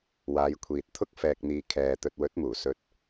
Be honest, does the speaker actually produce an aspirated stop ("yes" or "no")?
yes